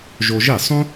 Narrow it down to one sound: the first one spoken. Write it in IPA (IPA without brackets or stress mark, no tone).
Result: ʒ